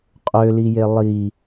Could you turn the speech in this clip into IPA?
qʼ ø l i j e lˠ i

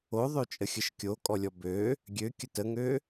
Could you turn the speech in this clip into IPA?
o ðˤ ø t͡ʃʼ ə xʲ ə ʃ kʲ o kʼ ɔ lʲ ɔ b ø | ɡʲ ø kʲ ə t ə ŋ ø

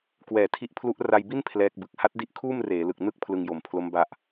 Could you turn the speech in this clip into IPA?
k w ɛː˨˩ tʰ i˦˥ ʔ pʰ l u˦˥ ʔ r a˧ j b i˥˩ n pʰ l ɛː˦˥ k̚ b ɯ˨˩ k̚ h a˦˥ t̚ d i˦˥ ʔ kʰ uː˥˩ m r eː˩˦ l ɯ˨˩ k̚ n ɯ˥˩ k̚ pʰ l ɯ˧ ŋ j o˨˩ m pʰ l o˦˥ m b a˥˩ ʔ

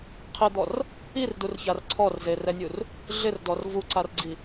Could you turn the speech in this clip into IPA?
qʰ ɪ d̪ ɔ r | i r d u r ç a r ǀʰ ɔ r z e r ɛ nʲ u r | ɮ ɪ r d ɔ r v u ǀ a r ɡ͡ǀ i

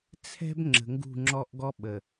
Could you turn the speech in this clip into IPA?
t͡sʰ ɛ̤˦ b ŋ͡ǁ ə̤˨ ŋ ɡ ṳ˦˨ ŋ͡ǁ ɔ˦ ʔ ɡ ɔ˦ ɓ ə˨

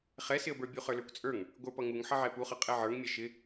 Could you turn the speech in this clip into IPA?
χ ɛ s ɪ ə̯ b ə˞ bʲ u χ ə˞ l ə˞ kʷ t͡sʼ ə˞ ŋ | ɡʷ ə˞ p ʌ ŋ u ŋ ħ ʌ ʕ ɛ p u χ ʌ qʼ ɛ ʕ ə˞ ŋ mʲ ɛ ʃ ɪ

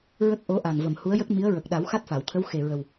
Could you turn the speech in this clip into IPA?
ɹ ə˦˥ k̚ ʔ o˧˥ ʔ a˨˩ ŋ v ə˨˩˨ m h u˧˥ ə̯ j ə˦˥ k̚ m i˧˥ ə̯ ɹ ə˨˩ k̚ ɗ a˨˩˦ w x a˦˥ t̚ f a˨˩˨ w t̪ʰ ə˧˥ w x e˨˩ ɹ ə˨˩ w

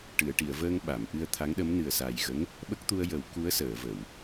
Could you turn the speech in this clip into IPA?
ʈ ɨ˨˩˨ ə̯ ʈ i˨˩˨ ə̯ v əː˧ ŋ ɓ a˨˩˨ m ʔ ɨ˧ ə̯ t̪ʰ a˧˥ ŋ ɗ ə˧˥ m n ɨ˨˩ ə̯ s a˨˩ j ɣ ə˧˥ ŋ | ɓ ə˦˥ k̚ t̪ u˧ ə̯ j ə˨˩˦ w k u˧˥ ə̯ s əː˨˩˨ v ə˨˩˨ w

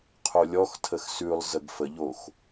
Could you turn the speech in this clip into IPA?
qʰ o lʲ ɔ x tʰ ə x s ʉ lˠ z ə ɡ f ə ʎ o x

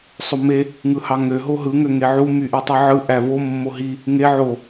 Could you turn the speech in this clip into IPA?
sˤ o m e | ŋ ɯ h ɑ ŋ ø ɦ o ɦ ɯ ŋ ø ŋ e ʕ u m y ʔ i tˤ i ʕ ɯ ʔ æ v o mː o ɦ i | ŋ e ʕ o

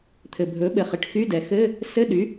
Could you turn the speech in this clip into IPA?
t̪ʰ ɘ˩ bʱ ɵ˩˥ ɓ ɘ˩ χ ɘ˩ ʈ x y˧˥˧ d ɛ˩ x ɘ˧˥˧ | s ɘ˧˥˧ ɗ y˩˥

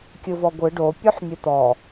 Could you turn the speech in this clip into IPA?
kʲ ɯ v ɔ ɡʷ ɯ ɖ o pʲ o ħ mʲ ɯ t̪ ɔ

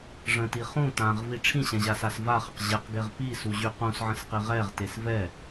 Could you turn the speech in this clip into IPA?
ʐ ə̃ t i χ ũ t ã ʁ v i ʈ͡ʂʰ ĩ ɕ ɛ̃ ʑ a s a s v a χ ə q ʑ ɛ q ɡ e ʁ p i s u ʑ y q ũ s ʕ ə̃ s q i ʁ ɛ ʁ t e s v ɛ

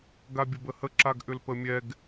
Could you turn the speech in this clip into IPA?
ɡ a bʲ ə b ə h ə ǁ a ɡ ʔ ʏ l p ə mʲ ɛ ɡ

